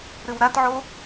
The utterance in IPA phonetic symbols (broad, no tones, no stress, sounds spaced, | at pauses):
ɾ ɨ w ɾ a t ʕ o